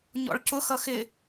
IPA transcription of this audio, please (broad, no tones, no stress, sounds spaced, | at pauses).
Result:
ɲ ɔ̰ ɭ c ʊ x ʌ x ɪ